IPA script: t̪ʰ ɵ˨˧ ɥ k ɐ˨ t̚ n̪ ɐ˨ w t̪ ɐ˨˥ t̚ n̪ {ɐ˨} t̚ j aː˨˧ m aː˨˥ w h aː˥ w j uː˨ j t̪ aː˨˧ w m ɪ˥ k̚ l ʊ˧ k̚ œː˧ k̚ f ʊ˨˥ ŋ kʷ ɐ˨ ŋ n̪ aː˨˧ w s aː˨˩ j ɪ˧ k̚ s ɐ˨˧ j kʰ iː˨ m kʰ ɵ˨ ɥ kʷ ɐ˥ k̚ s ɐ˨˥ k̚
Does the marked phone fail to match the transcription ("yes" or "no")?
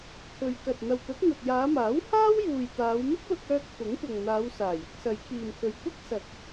no